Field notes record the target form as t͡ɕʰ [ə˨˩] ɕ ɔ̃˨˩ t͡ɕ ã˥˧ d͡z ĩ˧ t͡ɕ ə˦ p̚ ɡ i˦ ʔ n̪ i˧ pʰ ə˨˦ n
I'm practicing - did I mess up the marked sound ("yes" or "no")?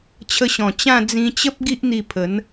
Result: yes